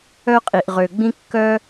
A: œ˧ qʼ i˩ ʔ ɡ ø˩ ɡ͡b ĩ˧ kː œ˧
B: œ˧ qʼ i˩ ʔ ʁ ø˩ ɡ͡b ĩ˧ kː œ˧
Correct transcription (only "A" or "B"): B